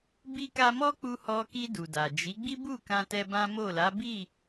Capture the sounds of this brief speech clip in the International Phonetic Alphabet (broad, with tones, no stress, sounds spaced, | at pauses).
b i˦ k a˦ m ɔ˦ k͡p u˧ h ɔ˧ k i˧ d u˨ d a˨ d͡ʒ i˨˦ ɡ͡b i˦ b u˦˨ k ã˧ t ɛ˧ b ã˦ m o˦˨ l a˨˦ b i˦˨